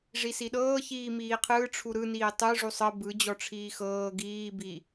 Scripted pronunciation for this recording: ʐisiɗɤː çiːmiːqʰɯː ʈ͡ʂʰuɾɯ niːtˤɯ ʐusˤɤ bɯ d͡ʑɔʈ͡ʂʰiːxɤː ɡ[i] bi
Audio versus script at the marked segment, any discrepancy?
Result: yes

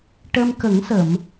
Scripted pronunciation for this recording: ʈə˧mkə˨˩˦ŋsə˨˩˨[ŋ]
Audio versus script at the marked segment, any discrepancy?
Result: yes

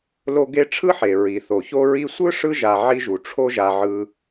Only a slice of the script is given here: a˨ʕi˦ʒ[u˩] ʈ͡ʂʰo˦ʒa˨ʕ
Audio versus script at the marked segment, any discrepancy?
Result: no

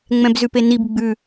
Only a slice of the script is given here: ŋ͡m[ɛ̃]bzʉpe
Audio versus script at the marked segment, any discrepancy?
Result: no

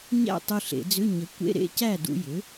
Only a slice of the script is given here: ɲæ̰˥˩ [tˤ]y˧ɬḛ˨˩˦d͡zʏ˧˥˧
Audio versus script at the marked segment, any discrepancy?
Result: no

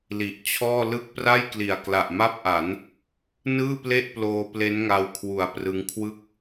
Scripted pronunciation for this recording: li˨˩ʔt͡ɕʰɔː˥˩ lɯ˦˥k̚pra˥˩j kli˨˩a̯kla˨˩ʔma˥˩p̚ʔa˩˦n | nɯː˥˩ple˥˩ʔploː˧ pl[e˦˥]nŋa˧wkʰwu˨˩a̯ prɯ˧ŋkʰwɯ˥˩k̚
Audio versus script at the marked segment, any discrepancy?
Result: no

